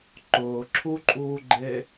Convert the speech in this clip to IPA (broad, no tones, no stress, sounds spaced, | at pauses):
ǃ ʊː ǁʰ u ǃʼ uː ɡ͡ǃ e